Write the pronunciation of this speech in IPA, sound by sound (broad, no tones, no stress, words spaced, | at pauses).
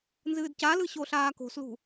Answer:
nzɨːdcalɯ ɕoɬaːko̤slṳ